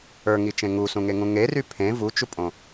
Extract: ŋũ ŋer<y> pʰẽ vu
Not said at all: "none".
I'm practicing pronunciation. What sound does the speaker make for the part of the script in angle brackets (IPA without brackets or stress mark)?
y